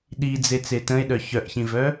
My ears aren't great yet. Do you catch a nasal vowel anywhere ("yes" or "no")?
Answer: yes